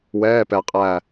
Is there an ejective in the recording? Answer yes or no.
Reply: yes